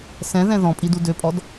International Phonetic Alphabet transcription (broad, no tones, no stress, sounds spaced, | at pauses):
s ɛ̃ ð ɛ̃ ð ɔ̃ pʼ i d u d ø pʼ ɔ d